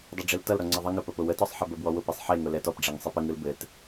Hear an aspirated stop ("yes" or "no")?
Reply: no